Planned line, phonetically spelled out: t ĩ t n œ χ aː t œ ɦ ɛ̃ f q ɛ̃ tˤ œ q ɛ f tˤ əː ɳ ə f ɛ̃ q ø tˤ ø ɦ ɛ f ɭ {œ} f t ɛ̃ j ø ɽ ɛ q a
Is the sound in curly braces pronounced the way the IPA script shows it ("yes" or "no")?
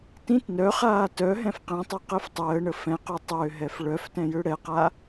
yes